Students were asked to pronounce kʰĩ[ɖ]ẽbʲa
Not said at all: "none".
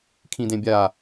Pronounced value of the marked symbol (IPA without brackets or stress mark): d